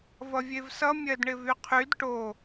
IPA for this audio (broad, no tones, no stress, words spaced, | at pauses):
vʌvʲevsʌ mʲɜdɳɪvyqʰyd ʈo